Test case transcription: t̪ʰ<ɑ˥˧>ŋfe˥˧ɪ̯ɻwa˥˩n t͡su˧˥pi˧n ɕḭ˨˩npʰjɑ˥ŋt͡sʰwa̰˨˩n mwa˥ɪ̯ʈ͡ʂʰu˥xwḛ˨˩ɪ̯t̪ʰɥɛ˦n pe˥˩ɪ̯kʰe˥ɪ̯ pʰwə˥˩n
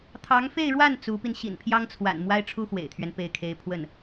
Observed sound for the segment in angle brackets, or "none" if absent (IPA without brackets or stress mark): ɑ˧˥